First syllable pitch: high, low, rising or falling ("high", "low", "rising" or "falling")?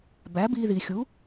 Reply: rising